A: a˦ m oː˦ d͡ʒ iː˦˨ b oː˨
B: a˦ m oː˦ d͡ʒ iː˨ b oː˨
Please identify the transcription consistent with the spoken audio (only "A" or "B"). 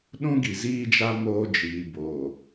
B